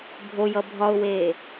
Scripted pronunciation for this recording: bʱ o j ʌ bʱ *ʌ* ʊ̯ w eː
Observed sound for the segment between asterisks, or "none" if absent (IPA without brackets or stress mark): ɒ